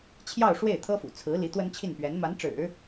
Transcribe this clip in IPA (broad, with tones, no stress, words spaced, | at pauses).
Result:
t͡ɕʰjɑ˥˧ʊ̯ʂwe˥˩ɪ̯ t̪ʰɤ˥fṵ˨˩t͡sʰɹ̩˧˥ li˧˥t̪wə˥nt͡ɕʰi˥˩n pɥɛ˧˥nma˧˥nʈ͡ʂɻ̩˨˩˦